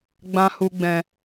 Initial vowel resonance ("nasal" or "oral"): nasal